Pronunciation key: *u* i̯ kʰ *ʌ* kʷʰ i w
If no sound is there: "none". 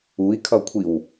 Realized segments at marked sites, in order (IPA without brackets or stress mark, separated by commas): u, ʌ